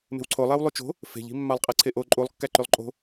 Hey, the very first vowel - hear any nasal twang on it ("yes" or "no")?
no